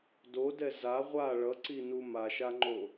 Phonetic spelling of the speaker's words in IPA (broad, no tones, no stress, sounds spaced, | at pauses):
d o d ɛ z a ʁʷ a ɭ ʌ ǀ i n u m a ʃ a ŋ͡ǃ o